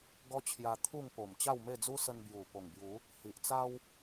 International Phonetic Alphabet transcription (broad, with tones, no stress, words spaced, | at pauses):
ɡɔ˦t͡ɕʰja˧ t̪ʰu˥˧ŋpo˨˩m t͡ɕa˥˧wme˥˧d͡zu˦sə˧n bju˨˩ po˨˩ŋbju˨˦ | hi˨ʔt͡sa˦w